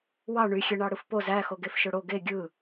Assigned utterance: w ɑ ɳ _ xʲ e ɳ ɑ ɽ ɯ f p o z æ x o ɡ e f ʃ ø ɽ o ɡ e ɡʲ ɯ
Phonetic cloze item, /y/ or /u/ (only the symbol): y